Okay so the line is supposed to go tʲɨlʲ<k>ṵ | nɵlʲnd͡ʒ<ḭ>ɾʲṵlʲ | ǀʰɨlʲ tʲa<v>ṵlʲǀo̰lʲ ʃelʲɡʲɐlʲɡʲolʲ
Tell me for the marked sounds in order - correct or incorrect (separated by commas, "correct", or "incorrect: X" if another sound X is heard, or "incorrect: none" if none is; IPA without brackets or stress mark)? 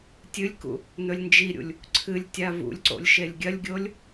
correct, incorrect: i, correct